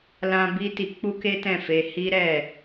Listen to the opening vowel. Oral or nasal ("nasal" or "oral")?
nasal